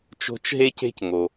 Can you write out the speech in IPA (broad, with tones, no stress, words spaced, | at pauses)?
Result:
t͡ʃo̤˦t͡ʃɦe˥ce̤˥cŋo˩